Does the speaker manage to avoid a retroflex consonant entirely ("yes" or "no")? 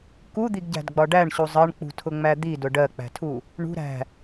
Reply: no